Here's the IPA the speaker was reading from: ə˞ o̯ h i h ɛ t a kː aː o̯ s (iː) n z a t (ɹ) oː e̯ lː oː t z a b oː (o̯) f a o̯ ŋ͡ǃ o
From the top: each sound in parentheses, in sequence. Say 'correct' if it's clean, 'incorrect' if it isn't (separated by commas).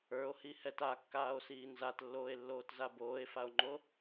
correct, incorrect, incorrect